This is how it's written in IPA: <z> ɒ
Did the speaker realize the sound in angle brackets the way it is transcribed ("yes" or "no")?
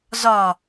yes